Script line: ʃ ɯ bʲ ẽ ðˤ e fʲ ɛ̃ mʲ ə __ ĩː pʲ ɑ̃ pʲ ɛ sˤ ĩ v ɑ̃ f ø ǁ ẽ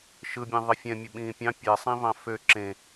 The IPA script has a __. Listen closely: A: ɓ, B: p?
A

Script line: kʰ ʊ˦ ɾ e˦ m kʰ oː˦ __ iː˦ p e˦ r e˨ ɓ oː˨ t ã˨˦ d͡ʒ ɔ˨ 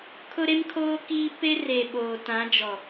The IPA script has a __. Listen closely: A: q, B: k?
B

